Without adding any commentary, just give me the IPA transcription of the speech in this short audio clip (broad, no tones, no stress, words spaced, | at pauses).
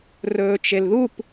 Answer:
rɵːt͡ʃelðup